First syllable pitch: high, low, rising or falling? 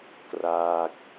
falling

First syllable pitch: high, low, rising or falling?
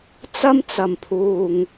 high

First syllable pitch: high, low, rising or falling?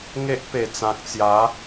high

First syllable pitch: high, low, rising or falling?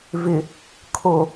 low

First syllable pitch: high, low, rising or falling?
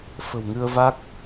low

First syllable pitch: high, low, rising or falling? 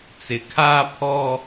low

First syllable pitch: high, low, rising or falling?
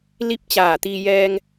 falling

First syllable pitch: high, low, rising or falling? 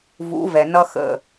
rising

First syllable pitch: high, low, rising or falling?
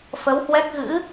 rising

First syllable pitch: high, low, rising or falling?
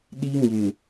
high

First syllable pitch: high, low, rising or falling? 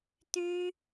high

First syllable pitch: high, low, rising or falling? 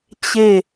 falling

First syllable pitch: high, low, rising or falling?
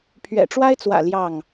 low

